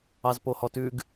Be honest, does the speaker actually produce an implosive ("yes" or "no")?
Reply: no